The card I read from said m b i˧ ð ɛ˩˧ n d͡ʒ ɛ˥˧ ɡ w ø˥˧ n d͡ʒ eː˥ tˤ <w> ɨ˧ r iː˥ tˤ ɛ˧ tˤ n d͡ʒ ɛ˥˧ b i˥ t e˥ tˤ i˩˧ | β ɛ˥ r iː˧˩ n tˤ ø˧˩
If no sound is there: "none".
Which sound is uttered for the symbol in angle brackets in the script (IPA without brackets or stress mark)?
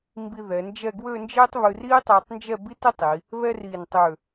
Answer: β